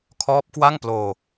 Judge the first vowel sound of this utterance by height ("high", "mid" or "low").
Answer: mid